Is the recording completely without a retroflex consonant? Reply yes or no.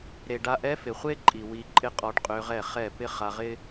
no